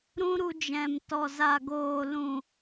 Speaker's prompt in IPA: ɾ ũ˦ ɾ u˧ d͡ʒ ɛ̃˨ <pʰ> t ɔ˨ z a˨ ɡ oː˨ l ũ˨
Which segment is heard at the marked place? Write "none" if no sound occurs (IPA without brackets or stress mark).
m